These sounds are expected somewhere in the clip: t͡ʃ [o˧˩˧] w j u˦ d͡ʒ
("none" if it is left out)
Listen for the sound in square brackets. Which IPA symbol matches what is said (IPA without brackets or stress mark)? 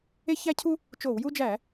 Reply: o˧˩˧